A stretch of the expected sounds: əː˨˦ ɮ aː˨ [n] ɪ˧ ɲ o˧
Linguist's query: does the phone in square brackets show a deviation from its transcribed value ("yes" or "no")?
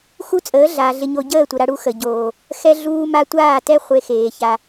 yes